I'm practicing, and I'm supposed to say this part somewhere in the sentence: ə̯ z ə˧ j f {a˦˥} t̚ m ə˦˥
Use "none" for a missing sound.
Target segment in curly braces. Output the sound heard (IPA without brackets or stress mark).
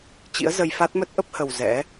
a˦˥